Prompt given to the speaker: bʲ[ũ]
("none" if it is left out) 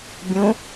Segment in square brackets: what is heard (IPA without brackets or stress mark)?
ũ